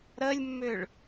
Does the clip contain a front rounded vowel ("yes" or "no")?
yes